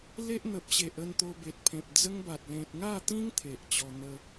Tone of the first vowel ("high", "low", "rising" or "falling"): high